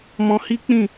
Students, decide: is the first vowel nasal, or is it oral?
nasal